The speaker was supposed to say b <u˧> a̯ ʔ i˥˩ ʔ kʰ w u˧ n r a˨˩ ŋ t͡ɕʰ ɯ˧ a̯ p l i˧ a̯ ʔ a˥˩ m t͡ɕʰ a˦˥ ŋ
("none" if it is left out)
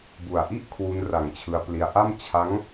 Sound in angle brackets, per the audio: u˨˩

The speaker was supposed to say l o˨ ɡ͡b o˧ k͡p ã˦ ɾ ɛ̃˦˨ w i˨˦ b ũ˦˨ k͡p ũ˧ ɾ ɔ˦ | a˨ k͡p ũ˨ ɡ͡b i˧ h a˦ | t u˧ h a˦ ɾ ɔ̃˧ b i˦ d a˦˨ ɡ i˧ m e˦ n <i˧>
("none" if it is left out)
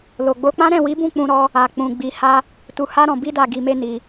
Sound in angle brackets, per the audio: i˧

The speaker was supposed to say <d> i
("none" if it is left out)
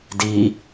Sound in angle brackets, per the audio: d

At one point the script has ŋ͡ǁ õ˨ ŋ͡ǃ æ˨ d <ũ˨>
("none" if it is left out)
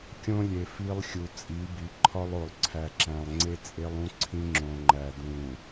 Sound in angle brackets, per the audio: ũ˨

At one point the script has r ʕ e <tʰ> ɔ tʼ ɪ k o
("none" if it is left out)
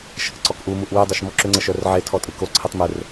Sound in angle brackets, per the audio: tʰ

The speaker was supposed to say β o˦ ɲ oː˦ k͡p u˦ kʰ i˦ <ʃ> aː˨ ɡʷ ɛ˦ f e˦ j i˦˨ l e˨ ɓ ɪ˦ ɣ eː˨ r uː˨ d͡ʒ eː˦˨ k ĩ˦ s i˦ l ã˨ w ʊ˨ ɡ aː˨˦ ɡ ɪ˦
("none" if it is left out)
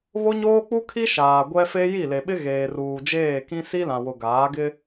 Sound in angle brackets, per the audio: ʃ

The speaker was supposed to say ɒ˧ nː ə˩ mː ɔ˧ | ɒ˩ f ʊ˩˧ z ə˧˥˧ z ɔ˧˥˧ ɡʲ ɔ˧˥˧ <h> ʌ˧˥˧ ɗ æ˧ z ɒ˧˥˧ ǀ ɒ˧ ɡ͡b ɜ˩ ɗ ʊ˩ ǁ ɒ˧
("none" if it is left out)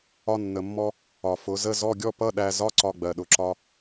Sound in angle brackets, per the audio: p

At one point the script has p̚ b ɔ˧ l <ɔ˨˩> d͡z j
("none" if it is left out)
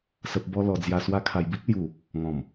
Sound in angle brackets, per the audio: ɔ˨˩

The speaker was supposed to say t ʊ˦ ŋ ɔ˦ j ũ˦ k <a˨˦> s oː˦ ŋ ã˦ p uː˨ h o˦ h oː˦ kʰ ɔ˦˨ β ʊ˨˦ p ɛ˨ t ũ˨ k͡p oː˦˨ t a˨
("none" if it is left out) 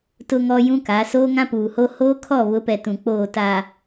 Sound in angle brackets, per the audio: a˨˦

